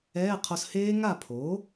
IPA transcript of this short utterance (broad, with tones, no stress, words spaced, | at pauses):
ɛː˧˥˧qʰo˧sheː˦˥ ŋa˥˩pʰo˩˥